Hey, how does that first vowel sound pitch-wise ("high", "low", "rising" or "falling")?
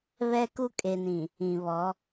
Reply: high